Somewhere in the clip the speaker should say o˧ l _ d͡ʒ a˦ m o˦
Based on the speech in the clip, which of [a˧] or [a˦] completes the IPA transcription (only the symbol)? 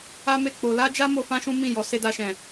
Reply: a˦